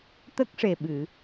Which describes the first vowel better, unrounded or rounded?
unrounded